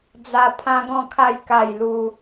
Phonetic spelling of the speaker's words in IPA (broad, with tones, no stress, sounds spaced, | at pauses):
d͡z a˥˧ pʰ ã˦ ɡ ɔ̃˥˧ kʰ a˥˧ j k a˥˧ j l u˦